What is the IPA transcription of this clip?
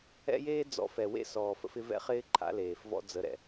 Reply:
ɛ̰˦ j eː˦ d͡z ɔ̰˨˦ f ɛ˨ w ḛ˦ s ɔː˨ f ə̰˦ f ɪ˦ v ɛ̰˦ χ ɪː˦ ǃʰ a̰˦ l eː˨ f v ɔ̰˦ d͡z ə˨˦ ɾ ɛ̰˨

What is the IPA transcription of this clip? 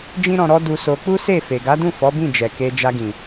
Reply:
d͡ʒ ĩ˦ ɾ ɔ̃˧ ɾ ɔ˦ d u˧ s o˧ k͡p u˦ s e˦˨ f e˨ ɡ a˨˦ d ũ˦˨ f ɔ˨˦ b ĩ˦˨ d͡ʒ ɛ˨ k e˧ d͡ʒ a˧ ɡ ĩ˨

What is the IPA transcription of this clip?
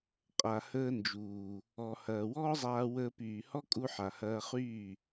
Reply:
qʼ a˨ h əː˧ n d͡ʒ uː˨ | ɔ˨ h ɐː˨ w ɔː˦ zˤ aː˧ w əː˧ p yː˨ h ɔ˦ kʼ u˧ ħ a˨ h ɐː˧ χ yː˦˨

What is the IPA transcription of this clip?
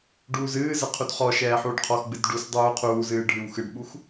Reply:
ɖ uː z ɨː z ɘ qʰ u d χ ɔ ʃ ɛː ħ uː ɖ qʰ ɔ x ɡ͡b ɨ d ɖ u s dˤ uː qʰ uː z ɨː ɖʱ ɨ w x ɨ ɖ ɓ u x

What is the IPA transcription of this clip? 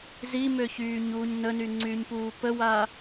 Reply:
z i m ø ç yː ɲ uː ɲ n ə n y ŋ͡ǀ y ɲ p uː p ə w a

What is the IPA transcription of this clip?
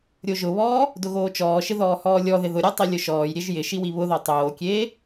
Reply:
ɾʲ o ʒ ʊ β ɔː | d ʊ ɣ oː t͡ʃ ɔː ʃ ɪ ð ɔː h ɔː lʲ ɔ ð ɪ ð ʊ ɾʲ ɔ tˤ i lʲ ʊ ʃ ɔː j ɾʲ e ʒ j ɪ ʃ i w i β ʊ ð ɔ tˤ oː kʲ eː

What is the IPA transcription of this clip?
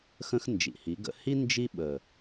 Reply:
x ə̃˦ x n d͡ʒ ḭ˨ h i˨˦ ɡ ə̰˦ h i˦ n d͡ʒ i˦ ɓ ə˨

